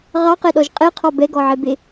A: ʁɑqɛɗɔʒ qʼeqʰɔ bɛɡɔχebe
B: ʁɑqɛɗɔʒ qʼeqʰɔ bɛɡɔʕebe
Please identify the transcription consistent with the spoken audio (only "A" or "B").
B